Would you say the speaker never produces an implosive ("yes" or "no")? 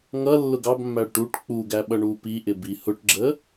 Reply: no